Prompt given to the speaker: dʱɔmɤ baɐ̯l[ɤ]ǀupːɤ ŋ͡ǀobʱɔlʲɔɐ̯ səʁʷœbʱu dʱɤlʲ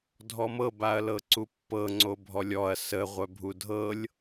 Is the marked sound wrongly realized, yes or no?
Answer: no